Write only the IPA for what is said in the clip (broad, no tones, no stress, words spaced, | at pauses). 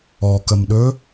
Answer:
ɔkəmɗɵ